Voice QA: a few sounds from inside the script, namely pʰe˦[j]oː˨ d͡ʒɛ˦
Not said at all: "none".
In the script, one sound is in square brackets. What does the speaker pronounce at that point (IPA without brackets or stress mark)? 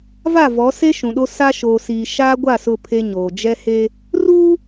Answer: ɲ